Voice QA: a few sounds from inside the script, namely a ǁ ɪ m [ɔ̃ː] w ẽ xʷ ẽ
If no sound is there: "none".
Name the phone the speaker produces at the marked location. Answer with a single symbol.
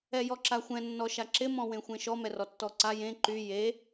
ɔ̃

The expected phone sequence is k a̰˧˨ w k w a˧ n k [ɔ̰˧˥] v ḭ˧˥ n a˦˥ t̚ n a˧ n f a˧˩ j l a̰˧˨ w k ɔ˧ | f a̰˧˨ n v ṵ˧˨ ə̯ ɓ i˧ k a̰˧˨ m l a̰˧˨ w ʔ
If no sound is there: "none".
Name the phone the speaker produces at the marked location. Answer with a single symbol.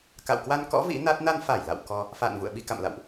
ɔ̰˧˥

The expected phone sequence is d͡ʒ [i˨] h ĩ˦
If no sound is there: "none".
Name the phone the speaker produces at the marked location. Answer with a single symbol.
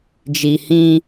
i˨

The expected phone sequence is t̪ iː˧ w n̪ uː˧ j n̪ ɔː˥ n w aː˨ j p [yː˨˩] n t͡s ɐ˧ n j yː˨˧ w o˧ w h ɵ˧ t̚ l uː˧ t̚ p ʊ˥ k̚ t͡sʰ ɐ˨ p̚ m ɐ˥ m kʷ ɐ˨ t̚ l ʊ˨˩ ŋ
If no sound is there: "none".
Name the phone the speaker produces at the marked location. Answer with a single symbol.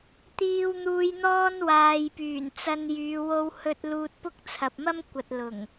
yː˨˩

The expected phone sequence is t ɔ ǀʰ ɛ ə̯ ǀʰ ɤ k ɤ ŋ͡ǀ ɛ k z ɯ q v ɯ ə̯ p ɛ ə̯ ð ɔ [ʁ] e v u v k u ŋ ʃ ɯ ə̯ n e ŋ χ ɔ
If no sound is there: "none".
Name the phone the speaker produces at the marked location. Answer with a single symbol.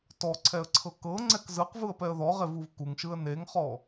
ʁ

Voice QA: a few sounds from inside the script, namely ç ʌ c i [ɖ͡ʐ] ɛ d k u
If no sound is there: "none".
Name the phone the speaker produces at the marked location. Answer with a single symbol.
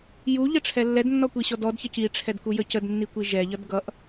ʈ͡ʂʰ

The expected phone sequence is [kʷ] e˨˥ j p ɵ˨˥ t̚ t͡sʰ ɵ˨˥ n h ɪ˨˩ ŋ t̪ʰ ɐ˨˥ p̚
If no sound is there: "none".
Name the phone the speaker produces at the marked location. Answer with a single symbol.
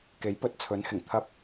k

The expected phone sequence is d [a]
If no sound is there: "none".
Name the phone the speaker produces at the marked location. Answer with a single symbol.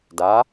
a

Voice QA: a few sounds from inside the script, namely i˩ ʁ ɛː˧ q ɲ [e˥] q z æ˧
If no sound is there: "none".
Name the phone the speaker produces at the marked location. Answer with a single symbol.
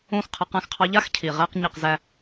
e˧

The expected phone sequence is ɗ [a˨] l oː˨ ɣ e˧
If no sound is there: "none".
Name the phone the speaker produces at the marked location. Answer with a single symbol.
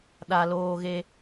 a˨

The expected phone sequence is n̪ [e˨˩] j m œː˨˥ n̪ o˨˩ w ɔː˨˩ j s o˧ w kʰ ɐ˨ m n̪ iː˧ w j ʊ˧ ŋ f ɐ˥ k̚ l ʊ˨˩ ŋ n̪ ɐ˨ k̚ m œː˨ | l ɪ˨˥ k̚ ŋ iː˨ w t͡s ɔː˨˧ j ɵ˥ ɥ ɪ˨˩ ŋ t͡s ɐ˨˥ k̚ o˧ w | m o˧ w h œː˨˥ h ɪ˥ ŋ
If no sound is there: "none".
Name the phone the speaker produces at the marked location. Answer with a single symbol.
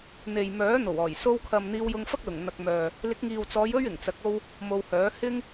e˨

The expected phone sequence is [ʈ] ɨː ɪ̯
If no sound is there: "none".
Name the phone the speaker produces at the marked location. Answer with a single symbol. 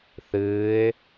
θ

